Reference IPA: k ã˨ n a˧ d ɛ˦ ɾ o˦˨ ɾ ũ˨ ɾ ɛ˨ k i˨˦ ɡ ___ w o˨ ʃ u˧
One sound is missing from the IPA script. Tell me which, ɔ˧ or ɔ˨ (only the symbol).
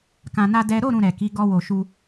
ɔ˧